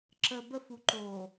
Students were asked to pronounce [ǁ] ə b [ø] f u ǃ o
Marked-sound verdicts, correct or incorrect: correct, incorrect

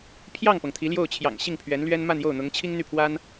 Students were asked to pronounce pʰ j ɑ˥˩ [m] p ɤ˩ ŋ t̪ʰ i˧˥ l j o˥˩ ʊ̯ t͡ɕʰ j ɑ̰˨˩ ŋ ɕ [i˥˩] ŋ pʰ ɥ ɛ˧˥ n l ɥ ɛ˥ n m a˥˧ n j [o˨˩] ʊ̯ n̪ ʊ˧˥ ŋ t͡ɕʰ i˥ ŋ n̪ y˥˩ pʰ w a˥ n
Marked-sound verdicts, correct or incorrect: incorrect, correct, incorrect

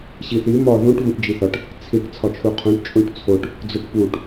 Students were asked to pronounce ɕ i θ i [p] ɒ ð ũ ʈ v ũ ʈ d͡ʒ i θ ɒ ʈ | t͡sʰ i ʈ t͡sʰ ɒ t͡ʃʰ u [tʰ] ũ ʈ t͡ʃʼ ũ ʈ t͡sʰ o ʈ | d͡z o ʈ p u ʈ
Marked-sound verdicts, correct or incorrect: incorrect, incorrect

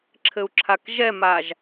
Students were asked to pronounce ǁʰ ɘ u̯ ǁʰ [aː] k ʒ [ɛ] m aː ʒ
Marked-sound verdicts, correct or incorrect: incorrect, correct

